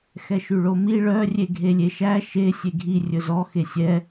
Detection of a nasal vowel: absent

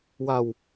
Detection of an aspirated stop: absent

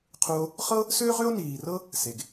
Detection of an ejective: absent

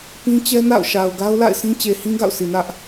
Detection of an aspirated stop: absent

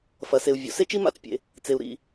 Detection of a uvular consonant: absent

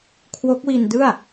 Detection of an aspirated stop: present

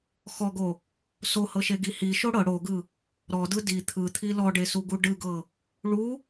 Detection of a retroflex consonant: present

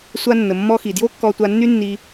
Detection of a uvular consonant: absent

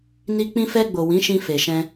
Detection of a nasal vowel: present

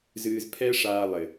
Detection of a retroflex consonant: present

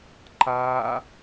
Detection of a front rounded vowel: absent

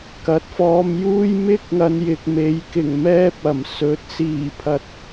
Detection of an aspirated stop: present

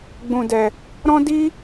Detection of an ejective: absent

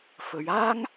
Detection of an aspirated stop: absent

